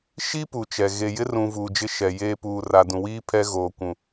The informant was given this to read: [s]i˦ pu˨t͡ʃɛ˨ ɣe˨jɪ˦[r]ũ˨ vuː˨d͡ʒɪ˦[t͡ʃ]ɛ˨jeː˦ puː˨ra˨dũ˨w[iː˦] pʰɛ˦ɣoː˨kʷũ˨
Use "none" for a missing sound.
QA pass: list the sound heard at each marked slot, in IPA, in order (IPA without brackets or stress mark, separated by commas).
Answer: ʃ, r, ʃ, iː˦